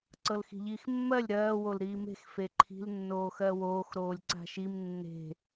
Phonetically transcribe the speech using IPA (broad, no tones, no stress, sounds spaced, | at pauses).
ǀ ɤ l x i̤ ʎ iː x mː ɜ lʲ ɾ ɜː w o l ɾ iː m e̤ x f e ǃʰ i̤ l nː oː x ɜ w oː x ɾ oː lʲ ǀ a̤ ʃ i m nː e̤